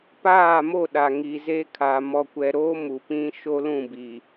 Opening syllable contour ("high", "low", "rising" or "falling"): falling